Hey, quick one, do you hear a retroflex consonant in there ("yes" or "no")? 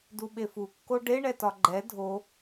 yes